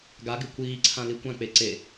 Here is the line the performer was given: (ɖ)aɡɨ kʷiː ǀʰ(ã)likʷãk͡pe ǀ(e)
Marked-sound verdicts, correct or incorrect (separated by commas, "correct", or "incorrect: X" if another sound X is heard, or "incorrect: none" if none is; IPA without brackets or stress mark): incorrect: ɡ, correct, correct